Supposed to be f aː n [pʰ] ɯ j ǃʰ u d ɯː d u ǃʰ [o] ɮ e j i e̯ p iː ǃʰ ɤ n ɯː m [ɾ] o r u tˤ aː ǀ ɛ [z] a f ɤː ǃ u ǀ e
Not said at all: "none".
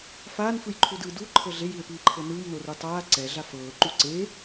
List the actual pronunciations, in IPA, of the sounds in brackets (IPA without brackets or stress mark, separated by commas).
f, ɤ, n, ɮ